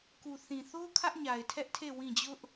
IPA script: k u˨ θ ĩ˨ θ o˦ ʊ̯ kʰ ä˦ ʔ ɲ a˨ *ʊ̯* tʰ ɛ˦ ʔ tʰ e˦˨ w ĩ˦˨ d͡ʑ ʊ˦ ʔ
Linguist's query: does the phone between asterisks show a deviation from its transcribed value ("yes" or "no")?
yes